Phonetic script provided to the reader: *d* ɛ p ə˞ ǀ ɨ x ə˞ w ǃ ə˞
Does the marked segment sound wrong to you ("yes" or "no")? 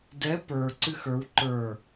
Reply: no